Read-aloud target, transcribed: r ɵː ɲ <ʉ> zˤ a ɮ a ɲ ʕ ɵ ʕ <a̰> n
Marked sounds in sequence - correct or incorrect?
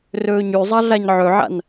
correct, correct

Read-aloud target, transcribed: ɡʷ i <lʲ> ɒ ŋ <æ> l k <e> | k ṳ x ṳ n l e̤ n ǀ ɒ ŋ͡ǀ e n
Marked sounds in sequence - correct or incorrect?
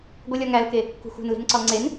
correct, correct, correct

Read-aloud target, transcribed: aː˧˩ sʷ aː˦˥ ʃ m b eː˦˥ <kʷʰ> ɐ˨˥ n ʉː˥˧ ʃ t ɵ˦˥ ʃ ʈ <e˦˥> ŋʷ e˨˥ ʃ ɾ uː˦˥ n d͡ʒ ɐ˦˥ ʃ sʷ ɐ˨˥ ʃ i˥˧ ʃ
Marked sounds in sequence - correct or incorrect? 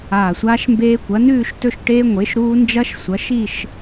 incorrect: kʷ, incorrect: eː˦˥

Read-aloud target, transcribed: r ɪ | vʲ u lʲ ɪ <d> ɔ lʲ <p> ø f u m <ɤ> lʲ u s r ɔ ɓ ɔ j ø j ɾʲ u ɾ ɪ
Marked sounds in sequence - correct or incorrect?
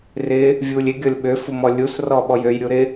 incorrect: ɡʲ, incorrect: ɓ, incorrect: ɔ

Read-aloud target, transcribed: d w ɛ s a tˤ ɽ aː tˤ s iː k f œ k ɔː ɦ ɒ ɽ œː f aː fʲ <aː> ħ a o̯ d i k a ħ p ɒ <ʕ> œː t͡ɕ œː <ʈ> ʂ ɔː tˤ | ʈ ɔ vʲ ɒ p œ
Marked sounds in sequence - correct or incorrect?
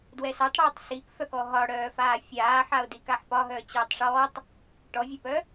correct, incorrect: ɦ, incorrect: tˤ

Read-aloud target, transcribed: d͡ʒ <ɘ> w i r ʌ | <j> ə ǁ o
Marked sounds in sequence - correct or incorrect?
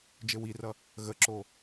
correct, incorrect: ɣ

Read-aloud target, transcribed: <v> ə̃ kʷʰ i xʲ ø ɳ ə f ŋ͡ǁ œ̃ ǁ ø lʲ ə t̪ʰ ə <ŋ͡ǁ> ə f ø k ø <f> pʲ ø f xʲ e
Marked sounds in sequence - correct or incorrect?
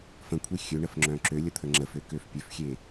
incorrect: f, correct, correct

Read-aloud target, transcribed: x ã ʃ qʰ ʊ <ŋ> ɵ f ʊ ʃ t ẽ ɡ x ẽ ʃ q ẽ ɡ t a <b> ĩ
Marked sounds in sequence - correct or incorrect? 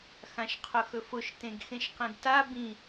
incorrect: x, correct

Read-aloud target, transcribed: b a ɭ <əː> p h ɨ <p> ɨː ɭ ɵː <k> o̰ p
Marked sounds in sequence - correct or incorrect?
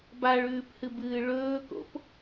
incorrect: ʉː, incorrect: b, correct

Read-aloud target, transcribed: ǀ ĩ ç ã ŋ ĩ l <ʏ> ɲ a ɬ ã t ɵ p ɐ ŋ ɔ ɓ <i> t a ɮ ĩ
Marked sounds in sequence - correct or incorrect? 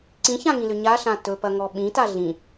correct, incorrect: ĩ

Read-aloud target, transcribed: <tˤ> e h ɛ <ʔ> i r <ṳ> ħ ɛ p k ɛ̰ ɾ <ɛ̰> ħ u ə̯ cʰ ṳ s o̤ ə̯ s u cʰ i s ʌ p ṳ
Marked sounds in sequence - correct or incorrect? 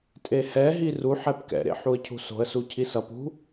incorrect: tʼ, incorrect: ɦ, incorrect: u, incorrect: ḛ

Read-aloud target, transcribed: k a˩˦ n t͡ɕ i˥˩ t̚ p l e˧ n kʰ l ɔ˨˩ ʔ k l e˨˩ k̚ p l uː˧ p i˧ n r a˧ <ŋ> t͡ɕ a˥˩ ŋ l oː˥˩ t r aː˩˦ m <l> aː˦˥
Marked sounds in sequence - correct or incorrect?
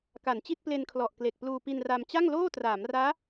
incorrect: m, incorrect: r

